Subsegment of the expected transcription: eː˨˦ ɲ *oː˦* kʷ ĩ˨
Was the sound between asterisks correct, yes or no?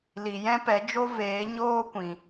yes